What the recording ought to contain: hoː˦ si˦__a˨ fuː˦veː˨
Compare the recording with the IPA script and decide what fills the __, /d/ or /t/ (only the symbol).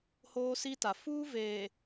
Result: t